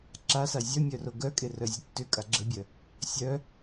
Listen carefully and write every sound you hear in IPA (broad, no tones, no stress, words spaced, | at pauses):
ǁasa zʲœmʲœro ɡœ kʼerœzʲətːʏ kʼaɡ͡ǁəbʲœ | sʲœ